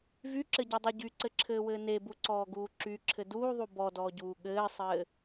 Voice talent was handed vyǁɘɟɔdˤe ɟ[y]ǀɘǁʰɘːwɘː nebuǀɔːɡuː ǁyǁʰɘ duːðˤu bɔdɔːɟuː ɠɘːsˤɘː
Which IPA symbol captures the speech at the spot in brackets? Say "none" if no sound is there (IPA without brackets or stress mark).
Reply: y